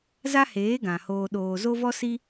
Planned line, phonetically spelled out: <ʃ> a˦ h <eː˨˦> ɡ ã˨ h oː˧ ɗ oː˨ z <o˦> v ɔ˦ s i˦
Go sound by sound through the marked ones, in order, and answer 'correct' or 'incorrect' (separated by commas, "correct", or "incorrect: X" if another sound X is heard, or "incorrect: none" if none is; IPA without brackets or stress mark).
incorrect: z, correct, correct